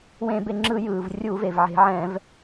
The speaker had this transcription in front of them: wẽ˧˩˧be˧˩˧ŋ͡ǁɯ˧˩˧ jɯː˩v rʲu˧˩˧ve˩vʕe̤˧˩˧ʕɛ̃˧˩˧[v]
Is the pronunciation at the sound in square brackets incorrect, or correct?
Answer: correct